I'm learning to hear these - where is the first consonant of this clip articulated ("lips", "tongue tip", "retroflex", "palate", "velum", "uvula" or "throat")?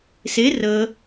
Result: tongue tip